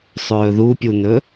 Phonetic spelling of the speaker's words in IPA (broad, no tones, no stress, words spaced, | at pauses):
sˤɵːðupʲunɵ